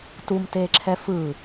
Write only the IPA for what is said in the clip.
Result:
t u m t eː ǁʰ ɛ f ɯ

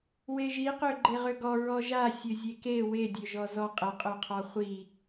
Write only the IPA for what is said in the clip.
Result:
w e ʒ i q ø ɡ͡ǃ e ʁ ø ɡ ɔ ɹ ɔ ʒ a sʲ ø zʲ e k e w e dʲ ø ʒ ɔ z ɔ qʼ ə qʼ ø qʰ ɔ χʷ i

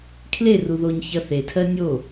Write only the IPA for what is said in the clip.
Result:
kʰ l e r u ð o ɲ ç ɐ θ e tʰ ɜ nʲ o

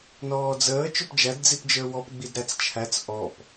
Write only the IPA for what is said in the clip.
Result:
n ɔː d͡z əː t͡ʃ ʊ p d͡ʒ æ d d͡z i p d͡ʒ ə˞ w ɔ p ɡ͡b i d ɾ æ t͡s t͡ʃʰ æ t͡s ʔ ɔ p

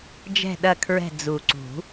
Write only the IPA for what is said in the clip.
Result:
d͡ʒ ɛ̤˦˨ ɗ ɐ˦˨ kʰ ɹ ɛ̤˦˨ d͡z u˨˩ ǀ ṳ˨˩˦

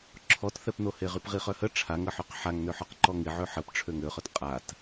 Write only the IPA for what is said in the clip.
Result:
ǁʰ ɔ t θ ɛ p n o h e ʁ y p ʁ i χ œ h ə ʈ͡ʂʰ a ŋ ə ħ ø q ħ a ŋ n ø ħ ɔ q ǃ ɔ ŋ i ʕ ø ħ ə p ʈ͡ʂʰ ø ŋ ø χ œ t qʼ a t

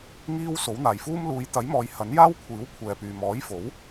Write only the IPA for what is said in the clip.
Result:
ŋ iː˥ w s o˨˥ w n̪ aː˨ j f uː˥ m l uː˨˧ j t̪ ɐ˨˥ j m ɔː˨˧ j h ɐ˨˥ n j aː˥ w kʷʰ iː˨˥ w kʷʰ ɛː˨ p yː˨ m ɔː˨˥ j f o˨˥ w

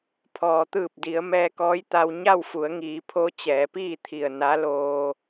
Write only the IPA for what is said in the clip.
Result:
pʰ ɔː˩ t̪ ɯː˧˩ p̚ d i˩˧ ə̯ m ɛː˧ k ɔː˧˥ j t̪ a˧ w ɲ a˥˨ w f u˩˧ ə̯ ŋ iː˩˧ pʰ o˧˥ t͡ɕ ɛː˩˧ p iː˥˨ t̪ʰ i˧˩ ə̯ n a˧˥ l oː˧

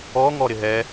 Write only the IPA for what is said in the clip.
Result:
ɔ ŋ ɔ ɾ ɪ ɦ ɛ

